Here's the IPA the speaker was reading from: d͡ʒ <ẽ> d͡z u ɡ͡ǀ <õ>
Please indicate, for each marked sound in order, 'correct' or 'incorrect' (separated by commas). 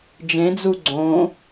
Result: correct, correct